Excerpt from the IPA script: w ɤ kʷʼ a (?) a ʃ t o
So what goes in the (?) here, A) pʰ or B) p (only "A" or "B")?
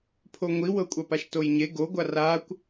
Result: B